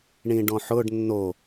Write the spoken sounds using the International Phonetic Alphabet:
ɳĩɖɔ̃ħʊɖ nːo

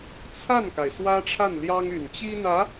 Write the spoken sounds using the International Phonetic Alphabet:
t͡sʰa˥˩nka˩ɪ̯ swä˥ʈ͡ʂʰa˥˩nljɑ˥ŋy˨˩n t͡ɕi˥n̪ä˧˥

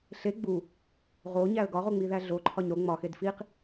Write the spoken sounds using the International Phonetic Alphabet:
ɬe ɡ͡bu | ʁoɲæə̯ ɡɒʁoŋ͡miðæ ɮoǃʰɒɲ ɾo ŋ͡mɒxed fiq

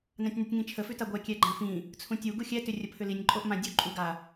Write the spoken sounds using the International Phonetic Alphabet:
nãtʲnʉtʲŋĩt͡ʃʰə fʉtaɡʷɛ kʲɛɡ͡ǃãfĩ | t͡sʰũtʲu ɡuxʲɛ tʏrʲəpʰʏlinʲ ǃʼoʔmãdʲo ǃʼuɡa

